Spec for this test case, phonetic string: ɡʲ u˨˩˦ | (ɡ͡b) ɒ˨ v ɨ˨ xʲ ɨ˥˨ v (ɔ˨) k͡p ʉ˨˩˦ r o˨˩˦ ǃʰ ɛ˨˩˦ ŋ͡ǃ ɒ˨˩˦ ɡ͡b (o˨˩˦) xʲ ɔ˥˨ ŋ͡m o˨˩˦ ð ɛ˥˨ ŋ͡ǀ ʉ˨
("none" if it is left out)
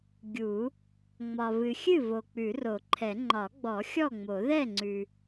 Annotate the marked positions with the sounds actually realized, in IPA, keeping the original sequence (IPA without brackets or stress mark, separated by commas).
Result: ŋ͡m, o˨, ɔ˨˩˦